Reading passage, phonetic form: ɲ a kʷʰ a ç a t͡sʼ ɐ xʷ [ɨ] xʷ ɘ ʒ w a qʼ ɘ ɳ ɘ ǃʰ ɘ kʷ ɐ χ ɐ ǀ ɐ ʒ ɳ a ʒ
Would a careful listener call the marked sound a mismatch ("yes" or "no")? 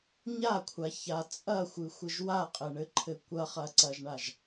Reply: no